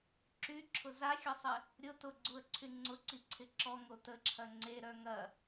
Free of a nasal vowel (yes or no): yes